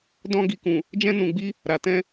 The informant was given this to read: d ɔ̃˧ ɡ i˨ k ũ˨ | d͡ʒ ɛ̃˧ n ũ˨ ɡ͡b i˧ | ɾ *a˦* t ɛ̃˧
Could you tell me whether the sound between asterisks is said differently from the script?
yes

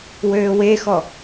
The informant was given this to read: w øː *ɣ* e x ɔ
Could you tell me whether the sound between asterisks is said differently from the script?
yes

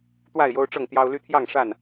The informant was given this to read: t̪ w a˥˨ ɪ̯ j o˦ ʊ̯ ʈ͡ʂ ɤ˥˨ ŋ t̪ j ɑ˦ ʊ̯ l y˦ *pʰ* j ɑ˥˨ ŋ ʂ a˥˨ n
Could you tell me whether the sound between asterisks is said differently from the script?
yes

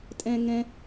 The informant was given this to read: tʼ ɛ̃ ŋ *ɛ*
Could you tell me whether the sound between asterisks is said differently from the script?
yes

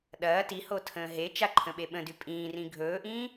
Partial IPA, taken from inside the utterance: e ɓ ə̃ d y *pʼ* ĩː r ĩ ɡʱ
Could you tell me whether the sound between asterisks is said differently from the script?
no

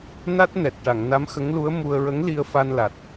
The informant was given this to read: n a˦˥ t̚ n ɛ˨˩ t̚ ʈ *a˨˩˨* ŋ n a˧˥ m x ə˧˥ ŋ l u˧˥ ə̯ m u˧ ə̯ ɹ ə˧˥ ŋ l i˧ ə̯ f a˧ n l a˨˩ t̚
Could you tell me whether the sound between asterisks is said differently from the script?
no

